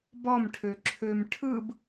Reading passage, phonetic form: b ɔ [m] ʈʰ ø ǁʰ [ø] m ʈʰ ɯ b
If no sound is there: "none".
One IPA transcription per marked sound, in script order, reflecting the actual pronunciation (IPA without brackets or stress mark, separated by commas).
m, ø